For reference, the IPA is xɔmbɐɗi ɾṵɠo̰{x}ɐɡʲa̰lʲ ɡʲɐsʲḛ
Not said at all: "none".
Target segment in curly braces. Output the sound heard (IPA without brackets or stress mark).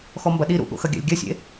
x